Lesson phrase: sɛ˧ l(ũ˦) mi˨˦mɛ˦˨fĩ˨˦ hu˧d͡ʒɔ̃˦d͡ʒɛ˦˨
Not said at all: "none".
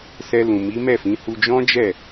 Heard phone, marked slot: ũ˨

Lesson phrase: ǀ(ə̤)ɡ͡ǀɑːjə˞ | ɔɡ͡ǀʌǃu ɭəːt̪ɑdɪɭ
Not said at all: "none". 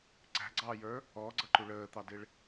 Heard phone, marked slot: æ̤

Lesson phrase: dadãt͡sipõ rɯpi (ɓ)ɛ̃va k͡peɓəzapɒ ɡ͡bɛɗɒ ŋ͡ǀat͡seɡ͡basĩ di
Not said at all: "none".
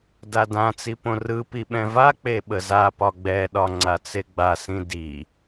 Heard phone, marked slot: ɓ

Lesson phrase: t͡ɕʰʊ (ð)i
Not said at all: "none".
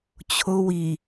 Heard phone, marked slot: w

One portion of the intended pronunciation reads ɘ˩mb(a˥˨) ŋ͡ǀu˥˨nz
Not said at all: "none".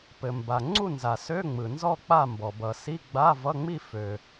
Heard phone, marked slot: a˩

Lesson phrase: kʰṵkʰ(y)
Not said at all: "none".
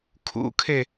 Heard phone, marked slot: e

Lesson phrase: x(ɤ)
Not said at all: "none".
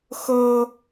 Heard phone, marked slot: ɤ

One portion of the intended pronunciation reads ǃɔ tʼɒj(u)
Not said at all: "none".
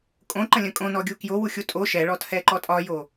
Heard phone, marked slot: o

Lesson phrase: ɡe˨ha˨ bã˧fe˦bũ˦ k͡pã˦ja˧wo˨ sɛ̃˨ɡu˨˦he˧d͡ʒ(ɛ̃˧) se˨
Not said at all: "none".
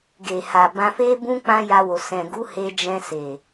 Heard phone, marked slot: ɛ̃˧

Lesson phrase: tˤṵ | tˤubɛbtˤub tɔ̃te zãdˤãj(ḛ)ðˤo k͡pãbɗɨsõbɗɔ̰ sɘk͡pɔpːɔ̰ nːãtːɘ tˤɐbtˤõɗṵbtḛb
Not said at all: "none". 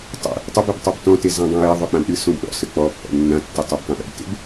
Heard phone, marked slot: e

